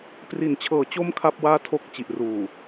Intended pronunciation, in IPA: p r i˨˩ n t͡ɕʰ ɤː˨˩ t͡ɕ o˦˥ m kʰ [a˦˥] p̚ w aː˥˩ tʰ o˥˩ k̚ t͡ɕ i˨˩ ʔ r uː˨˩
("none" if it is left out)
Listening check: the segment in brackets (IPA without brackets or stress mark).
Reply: a˥˩